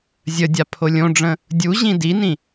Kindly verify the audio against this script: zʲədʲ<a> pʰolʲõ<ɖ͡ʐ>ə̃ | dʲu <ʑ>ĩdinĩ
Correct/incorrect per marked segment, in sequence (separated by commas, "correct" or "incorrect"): correct, correct, correct